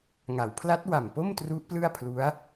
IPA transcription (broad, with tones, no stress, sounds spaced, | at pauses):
ŋ a˩˦ w pʰ l a˦˥ t̚ w a˨˩ m p o˥˩ m t r u˦˥ ʔ p l ɯ˥˩ a̯ pʰ l u˦˥ a̯